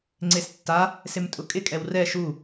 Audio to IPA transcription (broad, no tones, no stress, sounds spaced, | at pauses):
ŋ͡ǀ e s tː a | s ɪ m tʼ ʊ kʼ ɪ kʼ ɛ w r ɛ ʃ u